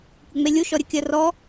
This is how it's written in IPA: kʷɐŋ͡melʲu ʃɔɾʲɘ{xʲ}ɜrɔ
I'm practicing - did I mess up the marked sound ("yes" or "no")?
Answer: yes